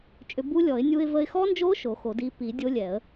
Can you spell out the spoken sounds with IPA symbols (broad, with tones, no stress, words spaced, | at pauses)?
t͡ʃʼʏ˧bu˦˥lʲɔ˨˩˦ɪ̯ nʲu˧ɪ̯və˧ɪ̯xɔ˦˥nd͡ʒo˦˥ ʃo˨˩˦xo˨˩˦di˦˥ pi˨˩˦dʲo˦˥lʲɛ˨˩˦ə̯